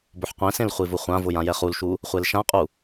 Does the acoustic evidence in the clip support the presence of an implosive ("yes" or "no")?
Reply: no